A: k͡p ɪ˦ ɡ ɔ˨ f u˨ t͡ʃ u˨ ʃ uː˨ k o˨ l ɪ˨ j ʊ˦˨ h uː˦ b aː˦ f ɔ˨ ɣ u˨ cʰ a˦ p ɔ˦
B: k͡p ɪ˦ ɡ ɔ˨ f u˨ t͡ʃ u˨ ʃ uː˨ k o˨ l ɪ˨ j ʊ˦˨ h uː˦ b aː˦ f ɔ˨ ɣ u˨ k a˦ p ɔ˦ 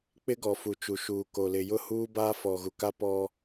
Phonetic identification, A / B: B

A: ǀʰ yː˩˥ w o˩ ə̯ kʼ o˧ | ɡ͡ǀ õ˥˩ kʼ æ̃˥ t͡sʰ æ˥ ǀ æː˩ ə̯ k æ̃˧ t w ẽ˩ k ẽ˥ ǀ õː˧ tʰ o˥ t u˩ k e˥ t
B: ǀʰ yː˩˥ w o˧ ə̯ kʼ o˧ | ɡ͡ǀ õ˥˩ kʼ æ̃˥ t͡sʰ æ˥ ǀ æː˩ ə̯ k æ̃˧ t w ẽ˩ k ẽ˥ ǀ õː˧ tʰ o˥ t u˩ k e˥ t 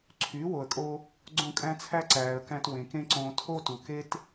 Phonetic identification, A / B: A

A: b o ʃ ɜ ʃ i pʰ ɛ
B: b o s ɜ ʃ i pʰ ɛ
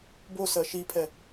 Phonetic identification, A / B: B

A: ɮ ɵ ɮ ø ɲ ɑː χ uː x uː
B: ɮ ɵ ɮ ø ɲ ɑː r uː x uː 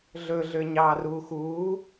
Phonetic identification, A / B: B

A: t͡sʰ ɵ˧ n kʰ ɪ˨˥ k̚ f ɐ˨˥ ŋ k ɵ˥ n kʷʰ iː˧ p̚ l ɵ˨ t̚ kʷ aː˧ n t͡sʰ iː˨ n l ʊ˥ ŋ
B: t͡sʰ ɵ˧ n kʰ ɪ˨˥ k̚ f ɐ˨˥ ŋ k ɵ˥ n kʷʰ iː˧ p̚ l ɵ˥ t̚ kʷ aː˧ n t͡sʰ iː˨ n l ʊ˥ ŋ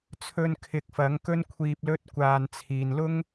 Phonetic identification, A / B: B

